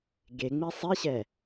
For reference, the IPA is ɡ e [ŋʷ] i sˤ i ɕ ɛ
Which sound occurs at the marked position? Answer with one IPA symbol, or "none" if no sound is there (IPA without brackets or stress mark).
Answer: ŋ͡m